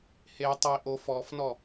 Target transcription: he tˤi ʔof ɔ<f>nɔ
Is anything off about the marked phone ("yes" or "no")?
no